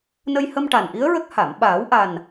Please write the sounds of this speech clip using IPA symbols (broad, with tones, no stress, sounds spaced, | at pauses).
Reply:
n ə˧ j h ə˧ m ʈ a˨˩ n ʔ i˧˥ ə̯ ɹ ə˦˥ k̚ h a˨˩˨ m ɓ aː˨˩˦ w ʔ a˨˩ n